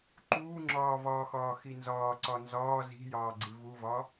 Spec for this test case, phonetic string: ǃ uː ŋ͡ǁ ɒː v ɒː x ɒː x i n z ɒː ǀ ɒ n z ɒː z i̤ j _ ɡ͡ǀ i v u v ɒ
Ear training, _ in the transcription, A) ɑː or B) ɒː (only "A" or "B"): A